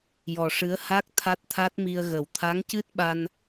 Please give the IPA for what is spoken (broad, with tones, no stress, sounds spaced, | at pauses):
j ɔ˨˩ ʂ ɨ˧˥ ə̯ h a˦˥ k̚ t̪ʰ a˦˥ t̚ t̪ʰ a˦˥ t̚ m i˧ ə̯ ɣ ə˨˩˦ w t̪ʰ a˧˥ ŋ c ɨ˦˥ t̚ ɓ a˧ n